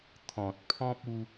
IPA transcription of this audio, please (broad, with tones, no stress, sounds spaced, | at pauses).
t̪ʰ ɔ̃˨ t̚ pʰ ɔ̃˦ p̚ u˧